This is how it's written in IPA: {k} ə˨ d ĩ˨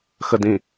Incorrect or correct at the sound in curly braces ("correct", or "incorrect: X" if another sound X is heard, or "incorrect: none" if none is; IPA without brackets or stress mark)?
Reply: incorrect: x